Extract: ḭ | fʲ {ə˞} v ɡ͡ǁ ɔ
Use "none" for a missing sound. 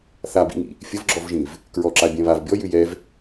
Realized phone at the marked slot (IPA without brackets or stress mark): ə